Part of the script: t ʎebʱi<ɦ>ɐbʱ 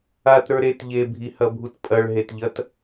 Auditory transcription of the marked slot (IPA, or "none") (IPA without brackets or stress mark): h